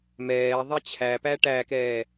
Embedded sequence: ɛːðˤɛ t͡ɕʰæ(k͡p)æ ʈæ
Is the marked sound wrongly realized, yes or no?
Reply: yes